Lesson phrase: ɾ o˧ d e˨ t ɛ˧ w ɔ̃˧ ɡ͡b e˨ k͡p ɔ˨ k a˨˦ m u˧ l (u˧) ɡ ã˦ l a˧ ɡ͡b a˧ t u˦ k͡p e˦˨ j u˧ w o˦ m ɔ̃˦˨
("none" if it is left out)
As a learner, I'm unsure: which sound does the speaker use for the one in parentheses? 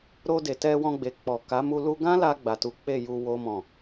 u˧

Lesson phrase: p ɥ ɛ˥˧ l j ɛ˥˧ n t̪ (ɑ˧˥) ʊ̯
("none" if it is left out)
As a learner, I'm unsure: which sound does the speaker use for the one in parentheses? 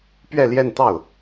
ɑ˥˩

